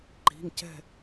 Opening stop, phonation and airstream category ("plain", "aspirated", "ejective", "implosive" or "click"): click